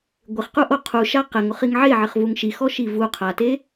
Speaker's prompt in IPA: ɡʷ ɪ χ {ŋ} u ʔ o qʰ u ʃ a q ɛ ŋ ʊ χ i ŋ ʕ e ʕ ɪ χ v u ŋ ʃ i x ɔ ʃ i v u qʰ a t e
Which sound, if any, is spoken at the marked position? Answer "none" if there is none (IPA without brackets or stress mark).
q